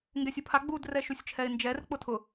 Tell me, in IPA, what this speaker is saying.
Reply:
ŋɡɛsʲupʰa ɡ͡bud rɛʃusʲt͡ʃʰɛɪ̯nd͡ʒɛr k͡pʊtʰʊ

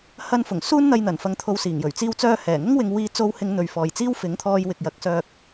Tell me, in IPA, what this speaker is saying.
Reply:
hɐ˧n fʊ˨˩ŋ suː˥nn̪ɐ˧jn̪ɐ˨˩nfɐ˨ŋ t̪ʰo˧wsiː˨˩ŋjɵ˨˩ɥ t͡siː˧wt͡sœː˧hɛː˨˩ŋʊ˥ŋ wɪ˧ŋ wiː˧ t͡so˧whɪ˨˧ŋ n̪ɵ˨ɥfɔː˨jt͡siː˥w fɪ˨˥ŋt̪ʰɔː˧j wɪ˨k̚jɐ˨˥k̚sœː˧k̚

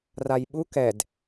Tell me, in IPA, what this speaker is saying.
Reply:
rajɓu kɛd

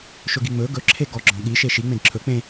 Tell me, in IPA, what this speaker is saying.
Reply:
ʃɵɡiŋ͡mɵ ɡɵ ǁʰeɡɔ ɡ͡ǁɔ̃ɠi ʃeʃi ŋ͡mẽdǁʰɵ k͡pẽ

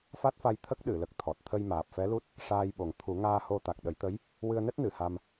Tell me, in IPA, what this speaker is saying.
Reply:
fa˦˥t̚fa˧j t̪ʰə˦˥k̚ɗɨ˨˩˨lə˨˩k̚t̪ʰɔ˨˩t̚ t̪ʰə˧jmaː˨˩p̚fɛ˧˥lu˦˥t̚ | ʂaː˧jɓo˨˩ŋ t̪ʰu˨˩˦ŋaː˧ho˧ t̪a˨˩k̚ɗə˨˩˦jt̪ə˧˥j | wɨ˧ə̯nɛ˦˥t̚ nɨ˨˩˨ha˧m

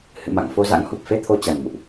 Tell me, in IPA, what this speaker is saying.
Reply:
hɨ̰˧˨ma̰˧˨ŋ fo˧za̰˧˥ŋ hu˨˩p̚fe˧ t̪ʰo˧t͡ɕa˨˩nmṵ˧˨ʔ

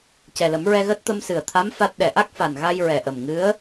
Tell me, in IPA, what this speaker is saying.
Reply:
cɛ˨˩lə˨˩˦mɹɛ˧ɣəː˦˥t̚ t̪ə˧msɨ˨˩ə̯t̪ʰa˧˥m fa˦˥t̚ ɗɛ˨˩ʔa˦˥k̚fa˨˩n ɣa˧jɹɛ˨˩ʔə˨˩m ŋɨ˧˥ə̯

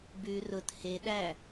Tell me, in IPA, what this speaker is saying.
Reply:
bʉ rʊt he ɗæ

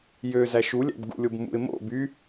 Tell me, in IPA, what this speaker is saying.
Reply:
jøzæ ʃulʲæ̰bɡṵlʲob mṵɪ̯ mo̰ by

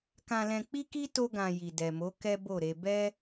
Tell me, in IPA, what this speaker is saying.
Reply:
kã˧lɛ̃˧k͡pi˦ki˦ to˦ɡã˧ ji˨dɛ˨mo˨˦ kɛ˦bo˦˨ɾe˧ bɛ˦

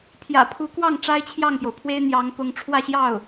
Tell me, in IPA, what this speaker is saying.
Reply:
pʰjä̰˨˩pʰu˧˥kwɑ˥˩ŋ ʈ͡ʂa˥ɪ̯t͡ɕʰjɑ˥˩ŋpjo˩ʊ̯ pʰwe˥ɪ̯n̪jɑ˧˥ŋ pʊ˧˥ŋ ʈ͡ʂʰwä˥˧ɕjɑ˥˩ʊ̯

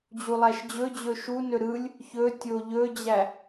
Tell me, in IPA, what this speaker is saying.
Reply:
d͡ʑulˠæʃd͡ʑɵd͡ʑɵ ʃunɵ ɾɯlʲ | çɵtʲo ʎɵd͡ʑæ

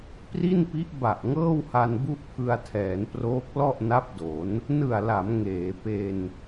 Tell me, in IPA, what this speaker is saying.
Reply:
pri˥˩npi˦˥ʔ ba˨˩ʔŋɤː˥˩wha˧n bu˥˩ʔpʰɯ˧a̯tʰɛː˩˦nproː˦˥k̚ lɔ˥˩ʔna˦˥p̚do˩˦n | nɯ˨˩a̯la˩˦m ŋeː˩˦pe˧n

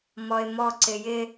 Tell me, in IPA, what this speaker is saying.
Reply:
mɔɪ̯mɔǀɪ jɪ

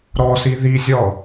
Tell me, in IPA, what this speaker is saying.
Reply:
ɾɔsi ðizʲɔ

